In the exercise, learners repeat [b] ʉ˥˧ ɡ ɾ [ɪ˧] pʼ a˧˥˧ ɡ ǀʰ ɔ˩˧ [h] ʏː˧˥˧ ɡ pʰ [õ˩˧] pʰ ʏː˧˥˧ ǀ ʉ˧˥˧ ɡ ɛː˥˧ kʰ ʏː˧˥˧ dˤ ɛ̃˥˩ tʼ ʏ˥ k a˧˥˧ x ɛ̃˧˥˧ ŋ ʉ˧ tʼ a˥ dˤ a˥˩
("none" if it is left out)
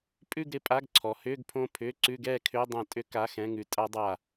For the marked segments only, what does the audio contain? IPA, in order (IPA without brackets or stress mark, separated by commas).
pʼ, ɪ˧, h, õ˥˧